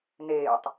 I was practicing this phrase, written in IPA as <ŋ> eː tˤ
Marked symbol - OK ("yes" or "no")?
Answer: no